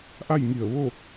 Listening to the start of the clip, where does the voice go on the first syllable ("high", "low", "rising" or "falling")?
falling